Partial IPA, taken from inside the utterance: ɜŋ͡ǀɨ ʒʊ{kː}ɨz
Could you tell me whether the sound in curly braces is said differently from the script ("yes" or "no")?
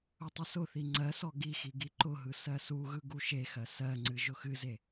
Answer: yes